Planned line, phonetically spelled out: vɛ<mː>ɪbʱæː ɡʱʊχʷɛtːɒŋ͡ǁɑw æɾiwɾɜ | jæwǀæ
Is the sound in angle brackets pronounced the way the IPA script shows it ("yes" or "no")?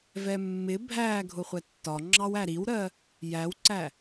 yes